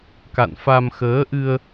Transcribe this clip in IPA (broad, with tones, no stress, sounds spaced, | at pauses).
k a̰˧˨ n f a˧ m x əː˨˦ ʔ ɨ˧ ə̯